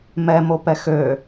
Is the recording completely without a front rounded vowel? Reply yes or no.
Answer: no